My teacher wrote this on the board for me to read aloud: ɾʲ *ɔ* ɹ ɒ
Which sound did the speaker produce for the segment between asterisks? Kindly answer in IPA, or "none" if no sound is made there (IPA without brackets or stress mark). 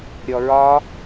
ɔ